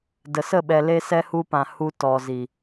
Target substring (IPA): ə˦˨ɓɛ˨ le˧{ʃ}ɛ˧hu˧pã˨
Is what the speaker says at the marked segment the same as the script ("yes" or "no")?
no